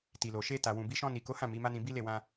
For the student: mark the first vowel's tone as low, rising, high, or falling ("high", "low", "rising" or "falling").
low